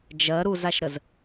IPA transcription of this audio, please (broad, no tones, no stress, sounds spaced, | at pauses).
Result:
d͡ʒ ɜ ɾ u z a ʃ ɾ ə z